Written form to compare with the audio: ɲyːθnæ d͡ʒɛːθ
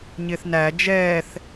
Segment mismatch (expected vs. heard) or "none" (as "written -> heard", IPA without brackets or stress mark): yː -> ɪː